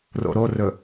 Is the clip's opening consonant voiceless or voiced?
voiced